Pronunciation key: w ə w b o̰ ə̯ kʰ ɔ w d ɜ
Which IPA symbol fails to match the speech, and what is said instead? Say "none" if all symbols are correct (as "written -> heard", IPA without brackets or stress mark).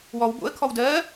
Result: ə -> ɔ